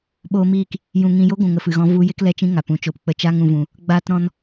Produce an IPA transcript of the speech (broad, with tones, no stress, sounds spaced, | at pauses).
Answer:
ɓ oː˧ m iː˦˨ k | j ũ˨ ŋ ĩ˨ j o˦ ɡʷ ũ˨ ŋ ə˨ f ɨ˨ ɣ ɔ̃˧ v u˧ j e˦ k l ɛ˦˨ t͡ʃ ĩ˦ ŋ a˨ p ũ˨ t͡ʃ o˧ p k͡p ə˧ t͡ʃ a˦ ŋ ũ˧ v ũ˧ | ɡ͡b aː˦ t ɾ ɔ̃˦ n